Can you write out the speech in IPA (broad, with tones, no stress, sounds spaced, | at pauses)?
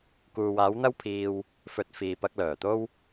k uː˨ w aː˨˥ w n̪ ɐ˥ w pʰ iː˧ w | f ɵ˨˥ t̚ f iː˨ p ɐ˧ k̚ l œː˨˩ t̪ o˥ w